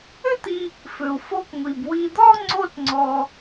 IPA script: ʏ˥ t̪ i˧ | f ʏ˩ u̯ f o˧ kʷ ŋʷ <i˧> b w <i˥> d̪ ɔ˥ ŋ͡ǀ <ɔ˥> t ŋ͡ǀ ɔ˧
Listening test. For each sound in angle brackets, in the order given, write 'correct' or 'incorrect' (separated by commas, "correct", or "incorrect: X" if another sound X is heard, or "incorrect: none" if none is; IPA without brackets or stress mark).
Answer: incorrect: i˩, incorrect: i˧, incorrect: o˥